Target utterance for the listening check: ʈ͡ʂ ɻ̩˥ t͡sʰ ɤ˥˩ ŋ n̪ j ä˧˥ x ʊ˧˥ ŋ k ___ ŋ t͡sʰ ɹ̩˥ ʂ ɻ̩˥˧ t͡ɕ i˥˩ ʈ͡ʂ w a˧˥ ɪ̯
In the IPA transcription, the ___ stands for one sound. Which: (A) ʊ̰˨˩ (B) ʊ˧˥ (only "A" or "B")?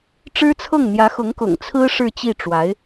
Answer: A